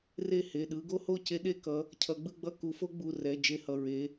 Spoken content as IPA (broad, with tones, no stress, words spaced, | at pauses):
re˥˧he˩˧˩ɗɯ˦˥ ɡo˦˥ho˥˧ ce˦˥ɗe˥˧kʌ˨˦ | cʰʌ˨˦ɡ͡bɯ˥˧ɡ͡bʌ˥˧ ku˨˦fo˦˥ɡ͡bu˩˧˩rɛ˩˧˩ d͡ʒe˥˧hʌ˩˧˩ ɹe˨˦